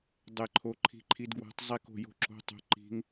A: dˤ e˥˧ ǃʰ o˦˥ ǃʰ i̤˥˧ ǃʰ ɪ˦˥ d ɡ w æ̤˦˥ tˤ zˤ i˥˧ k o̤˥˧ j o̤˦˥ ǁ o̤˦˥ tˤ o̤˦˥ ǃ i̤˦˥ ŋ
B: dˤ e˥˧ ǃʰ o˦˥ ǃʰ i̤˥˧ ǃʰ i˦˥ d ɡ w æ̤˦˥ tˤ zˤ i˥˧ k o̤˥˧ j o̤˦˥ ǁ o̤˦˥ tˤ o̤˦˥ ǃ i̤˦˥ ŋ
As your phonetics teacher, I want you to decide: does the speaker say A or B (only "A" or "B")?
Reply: B